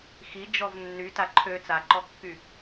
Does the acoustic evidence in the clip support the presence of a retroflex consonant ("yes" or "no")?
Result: no